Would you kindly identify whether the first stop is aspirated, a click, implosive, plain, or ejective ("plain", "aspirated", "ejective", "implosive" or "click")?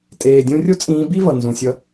ejective